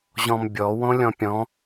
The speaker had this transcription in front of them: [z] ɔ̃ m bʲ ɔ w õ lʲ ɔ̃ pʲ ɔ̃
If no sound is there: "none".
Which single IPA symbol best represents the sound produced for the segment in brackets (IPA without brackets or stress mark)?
ʑ